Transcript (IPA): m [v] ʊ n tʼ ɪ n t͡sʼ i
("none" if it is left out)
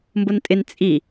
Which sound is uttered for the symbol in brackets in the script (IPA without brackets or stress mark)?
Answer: b